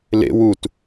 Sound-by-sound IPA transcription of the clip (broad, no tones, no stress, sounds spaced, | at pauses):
l ḛ w u t